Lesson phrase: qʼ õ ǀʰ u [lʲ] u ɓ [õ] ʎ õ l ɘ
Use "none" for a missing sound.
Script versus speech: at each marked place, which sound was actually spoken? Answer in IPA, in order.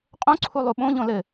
lˠ, õ

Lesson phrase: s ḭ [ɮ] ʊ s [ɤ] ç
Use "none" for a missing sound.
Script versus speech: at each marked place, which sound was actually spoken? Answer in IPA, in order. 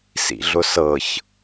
ɮ, ɤ

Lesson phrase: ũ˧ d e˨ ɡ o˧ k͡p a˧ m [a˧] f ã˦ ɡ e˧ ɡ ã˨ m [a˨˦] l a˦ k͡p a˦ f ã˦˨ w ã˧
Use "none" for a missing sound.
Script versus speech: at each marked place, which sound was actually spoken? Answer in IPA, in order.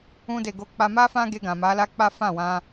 a˦, a˨˦

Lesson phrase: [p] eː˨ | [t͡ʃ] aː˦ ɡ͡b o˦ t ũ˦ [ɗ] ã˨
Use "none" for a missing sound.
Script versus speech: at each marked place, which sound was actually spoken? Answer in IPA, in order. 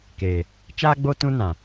k, t͡ʃ, n

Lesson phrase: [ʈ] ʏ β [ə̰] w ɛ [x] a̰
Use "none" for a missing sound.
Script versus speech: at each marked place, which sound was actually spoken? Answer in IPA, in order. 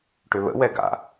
ʈ, ə̰, ɡ

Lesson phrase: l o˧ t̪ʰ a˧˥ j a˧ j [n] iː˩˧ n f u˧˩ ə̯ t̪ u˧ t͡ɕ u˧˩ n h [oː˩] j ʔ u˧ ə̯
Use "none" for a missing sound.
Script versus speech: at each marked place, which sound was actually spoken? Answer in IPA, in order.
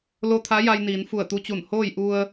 n, oː˥˨

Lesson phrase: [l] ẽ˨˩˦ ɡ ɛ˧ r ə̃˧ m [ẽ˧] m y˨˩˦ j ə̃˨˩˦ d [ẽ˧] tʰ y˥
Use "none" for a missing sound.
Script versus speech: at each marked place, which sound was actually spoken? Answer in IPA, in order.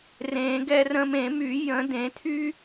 r, ẽ˨˩˦, ẽ˨˩˦

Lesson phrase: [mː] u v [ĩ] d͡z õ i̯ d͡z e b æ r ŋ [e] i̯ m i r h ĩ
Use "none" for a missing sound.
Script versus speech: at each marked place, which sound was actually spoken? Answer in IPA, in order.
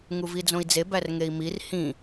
ŋ, i, e

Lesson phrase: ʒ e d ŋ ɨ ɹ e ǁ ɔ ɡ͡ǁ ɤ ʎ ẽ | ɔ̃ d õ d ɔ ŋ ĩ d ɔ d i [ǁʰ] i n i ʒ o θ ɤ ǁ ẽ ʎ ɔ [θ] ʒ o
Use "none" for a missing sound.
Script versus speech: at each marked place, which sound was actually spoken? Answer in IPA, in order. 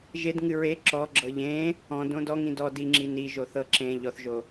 ŋ͡ǁ, θ

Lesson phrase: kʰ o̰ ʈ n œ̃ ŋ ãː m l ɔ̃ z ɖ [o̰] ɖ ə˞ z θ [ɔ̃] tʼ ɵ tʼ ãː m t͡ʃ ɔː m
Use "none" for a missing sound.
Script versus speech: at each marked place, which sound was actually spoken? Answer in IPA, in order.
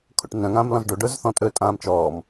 o, ɔ̃

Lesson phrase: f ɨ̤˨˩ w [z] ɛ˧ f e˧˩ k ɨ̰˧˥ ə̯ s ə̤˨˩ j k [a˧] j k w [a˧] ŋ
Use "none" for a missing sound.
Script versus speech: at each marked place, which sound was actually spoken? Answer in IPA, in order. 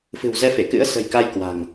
z, a˧, a̤˨˩

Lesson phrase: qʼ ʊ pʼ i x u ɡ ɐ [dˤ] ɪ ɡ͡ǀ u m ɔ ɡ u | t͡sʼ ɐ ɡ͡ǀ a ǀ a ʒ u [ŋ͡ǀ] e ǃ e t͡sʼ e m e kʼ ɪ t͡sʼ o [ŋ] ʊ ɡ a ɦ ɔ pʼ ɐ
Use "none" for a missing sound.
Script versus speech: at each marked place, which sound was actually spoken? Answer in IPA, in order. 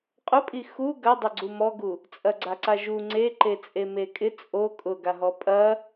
dˤ, ŋ͡ǀ, kʼ

